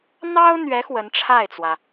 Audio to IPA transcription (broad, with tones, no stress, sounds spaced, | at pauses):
n̪ ɑ˥ ʊ̯ n̪ ɥ ɛ˧˥ x w ə˧˥ n ʈ͡ʂʰ a˥˩ ɪ̯ t͡s w ä˩